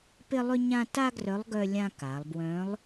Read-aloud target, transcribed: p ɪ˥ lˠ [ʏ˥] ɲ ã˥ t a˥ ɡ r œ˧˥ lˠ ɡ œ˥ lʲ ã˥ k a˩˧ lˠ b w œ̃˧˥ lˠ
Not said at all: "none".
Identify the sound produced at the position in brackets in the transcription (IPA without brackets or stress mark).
ʏ˥